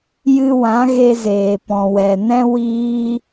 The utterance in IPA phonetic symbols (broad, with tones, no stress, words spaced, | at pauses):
jɨ˧wã˨˦ɣe˧zeː˨ pɔ̃˨wɛ˨ nɛ̃˦ wiː˦